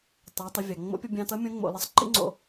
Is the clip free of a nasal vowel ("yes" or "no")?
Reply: no